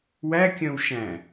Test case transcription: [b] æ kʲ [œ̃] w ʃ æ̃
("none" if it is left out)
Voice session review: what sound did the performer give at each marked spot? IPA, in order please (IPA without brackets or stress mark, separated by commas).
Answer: w, œ̃